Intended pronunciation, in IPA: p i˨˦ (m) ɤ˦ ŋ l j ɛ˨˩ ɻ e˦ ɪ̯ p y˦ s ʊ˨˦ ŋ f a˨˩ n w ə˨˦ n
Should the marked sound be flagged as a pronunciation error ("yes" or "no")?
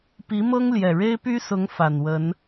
no